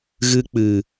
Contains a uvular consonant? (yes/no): no